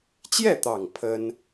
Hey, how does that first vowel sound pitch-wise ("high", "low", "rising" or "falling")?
falling